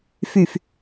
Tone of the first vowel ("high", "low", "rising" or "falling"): low